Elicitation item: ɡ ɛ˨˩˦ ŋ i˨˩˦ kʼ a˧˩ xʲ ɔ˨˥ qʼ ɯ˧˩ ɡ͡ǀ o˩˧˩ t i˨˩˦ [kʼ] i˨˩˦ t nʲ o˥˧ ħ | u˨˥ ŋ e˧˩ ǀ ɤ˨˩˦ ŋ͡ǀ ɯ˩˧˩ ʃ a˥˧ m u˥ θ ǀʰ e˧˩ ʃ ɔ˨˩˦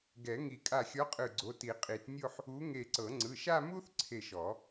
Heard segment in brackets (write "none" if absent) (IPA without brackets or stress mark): qʼ